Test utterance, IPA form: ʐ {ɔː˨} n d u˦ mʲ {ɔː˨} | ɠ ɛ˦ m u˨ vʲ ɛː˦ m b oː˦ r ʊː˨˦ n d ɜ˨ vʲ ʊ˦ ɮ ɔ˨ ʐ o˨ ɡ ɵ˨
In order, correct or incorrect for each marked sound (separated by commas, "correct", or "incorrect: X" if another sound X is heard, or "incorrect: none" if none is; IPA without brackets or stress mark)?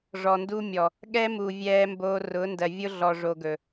incorrect: ɔ˨, incorrect: ɔ˨